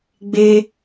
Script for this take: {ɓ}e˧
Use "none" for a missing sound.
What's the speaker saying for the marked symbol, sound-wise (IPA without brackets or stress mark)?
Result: ɡ͡b